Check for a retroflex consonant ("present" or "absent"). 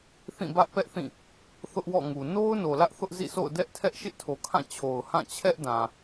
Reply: absent